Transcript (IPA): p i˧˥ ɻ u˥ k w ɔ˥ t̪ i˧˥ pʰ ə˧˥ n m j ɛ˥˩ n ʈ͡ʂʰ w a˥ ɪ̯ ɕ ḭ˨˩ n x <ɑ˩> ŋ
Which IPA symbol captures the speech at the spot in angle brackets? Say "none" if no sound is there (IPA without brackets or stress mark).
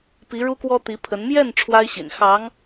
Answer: ɑ˧˥